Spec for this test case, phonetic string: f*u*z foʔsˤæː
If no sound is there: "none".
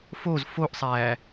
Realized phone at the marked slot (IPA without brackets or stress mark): o